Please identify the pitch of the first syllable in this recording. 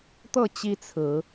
falling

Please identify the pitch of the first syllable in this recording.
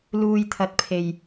low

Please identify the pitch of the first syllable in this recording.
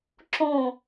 falling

